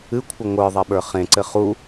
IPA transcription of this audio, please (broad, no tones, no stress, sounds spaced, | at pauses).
ɨ kʷʰ ɨ ŋʷ ə˞ ðˤ e ɓ ə˞ χ ẽ ǀ ɘ χ u